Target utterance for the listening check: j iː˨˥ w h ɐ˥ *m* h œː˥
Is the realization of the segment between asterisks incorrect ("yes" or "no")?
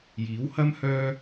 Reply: no